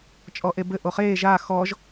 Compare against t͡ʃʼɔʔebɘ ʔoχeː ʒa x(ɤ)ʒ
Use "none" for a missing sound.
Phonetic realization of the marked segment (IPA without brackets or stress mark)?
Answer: ɔ